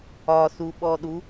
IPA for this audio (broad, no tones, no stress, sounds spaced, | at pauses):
ɒ s u ɓ ɔ ɗ u